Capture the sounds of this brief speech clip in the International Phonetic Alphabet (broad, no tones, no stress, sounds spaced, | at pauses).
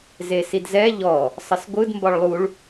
z e s i d z ɛ ʎ ɔ | sˤ ə s ɡʷ ɯ d m b ɒ ɭ lˠ u ɭ